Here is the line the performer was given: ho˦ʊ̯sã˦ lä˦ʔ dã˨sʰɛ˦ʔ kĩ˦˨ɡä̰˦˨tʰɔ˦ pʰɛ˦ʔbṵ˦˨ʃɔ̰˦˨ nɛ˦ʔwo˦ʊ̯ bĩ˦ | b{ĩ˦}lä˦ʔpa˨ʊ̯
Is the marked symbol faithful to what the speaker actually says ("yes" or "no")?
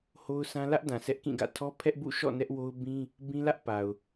yes